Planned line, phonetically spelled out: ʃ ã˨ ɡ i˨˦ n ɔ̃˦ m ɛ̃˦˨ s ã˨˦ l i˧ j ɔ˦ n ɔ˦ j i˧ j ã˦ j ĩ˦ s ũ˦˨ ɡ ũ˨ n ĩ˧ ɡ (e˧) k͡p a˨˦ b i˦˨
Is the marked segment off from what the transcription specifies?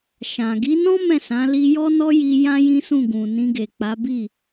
yes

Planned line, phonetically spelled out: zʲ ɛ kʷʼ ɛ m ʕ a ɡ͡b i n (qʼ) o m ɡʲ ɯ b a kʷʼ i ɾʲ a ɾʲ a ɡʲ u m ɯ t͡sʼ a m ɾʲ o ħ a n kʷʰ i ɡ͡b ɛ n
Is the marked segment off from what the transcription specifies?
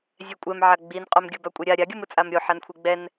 no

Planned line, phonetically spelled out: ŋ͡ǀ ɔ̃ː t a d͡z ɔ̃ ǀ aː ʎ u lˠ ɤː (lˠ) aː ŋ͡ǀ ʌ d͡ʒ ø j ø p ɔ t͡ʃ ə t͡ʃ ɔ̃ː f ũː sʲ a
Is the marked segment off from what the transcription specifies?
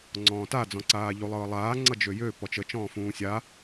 no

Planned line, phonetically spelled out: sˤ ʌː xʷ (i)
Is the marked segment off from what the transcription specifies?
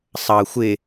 yes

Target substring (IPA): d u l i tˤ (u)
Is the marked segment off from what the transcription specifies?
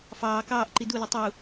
no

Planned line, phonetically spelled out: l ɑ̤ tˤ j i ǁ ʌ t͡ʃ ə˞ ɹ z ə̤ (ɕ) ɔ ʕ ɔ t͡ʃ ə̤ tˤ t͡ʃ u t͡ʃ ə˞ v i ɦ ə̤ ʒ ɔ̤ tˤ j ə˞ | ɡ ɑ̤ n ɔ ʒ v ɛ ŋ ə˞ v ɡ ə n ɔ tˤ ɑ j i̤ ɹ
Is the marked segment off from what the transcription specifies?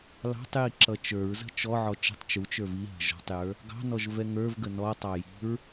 yes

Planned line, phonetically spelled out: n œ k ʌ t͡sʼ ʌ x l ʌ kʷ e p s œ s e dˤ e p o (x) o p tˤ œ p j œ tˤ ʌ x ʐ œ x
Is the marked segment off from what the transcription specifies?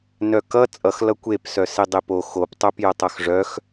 no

